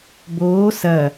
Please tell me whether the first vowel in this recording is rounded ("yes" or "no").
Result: yes